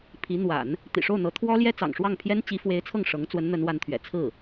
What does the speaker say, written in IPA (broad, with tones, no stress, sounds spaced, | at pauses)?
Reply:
pʰ i˧˥ n̪ w a̰˨˩˦ n | t̪ ḭ˨˩ ʂ o˥˩ ʊ̯ n̪ ɤ˧˥ t̪ʰ w ɔ˥ l j ɛ˥ t͡s ɑ̰˨˩ ŋ ʂ w ɑ˥˩ ŋ pʰ j ɛ˥ n t͡ɕ i˧˥ f w e˧˥ ɪ̯ t͡sʰ ɤ˥˩ ŋ ʂ ɤ˧˥ ŋ t͡s w ə˧˥ n n̪ ə˧˥ n w a˧˥ n t̪ʰ ɥ ɛ̰˨˩ t͡sʰ ɹ̩˥˩